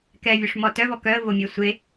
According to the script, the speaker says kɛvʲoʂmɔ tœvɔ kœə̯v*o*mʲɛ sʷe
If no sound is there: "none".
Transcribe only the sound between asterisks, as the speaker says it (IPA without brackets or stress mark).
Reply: o